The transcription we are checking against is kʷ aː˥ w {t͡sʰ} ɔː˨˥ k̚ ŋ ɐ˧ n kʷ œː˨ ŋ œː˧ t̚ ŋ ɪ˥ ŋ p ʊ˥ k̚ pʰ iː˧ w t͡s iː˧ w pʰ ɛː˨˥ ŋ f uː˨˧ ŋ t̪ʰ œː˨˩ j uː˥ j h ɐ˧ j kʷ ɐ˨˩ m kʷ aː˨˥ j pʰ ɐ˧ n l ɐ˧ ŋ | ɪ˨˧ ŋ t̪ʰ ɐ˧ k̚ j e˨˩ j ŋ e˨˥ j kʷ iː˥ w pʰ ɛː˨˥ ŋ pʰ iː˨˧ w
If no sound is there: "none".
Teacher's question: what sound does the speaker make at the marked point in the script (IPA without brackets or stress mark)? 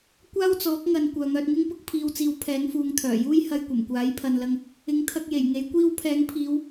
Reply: t͡s